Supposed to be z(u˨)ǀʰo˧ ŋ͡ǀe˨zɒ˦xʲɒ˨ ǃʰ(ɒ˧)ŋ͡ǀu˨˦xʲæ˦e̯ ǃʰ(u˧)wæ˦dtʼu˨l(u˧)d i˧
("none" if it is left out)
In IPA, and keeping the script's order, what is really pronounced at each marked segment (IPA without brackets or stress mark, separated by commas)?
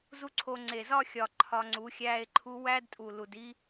u˦, ɒ˧, u˧, u˨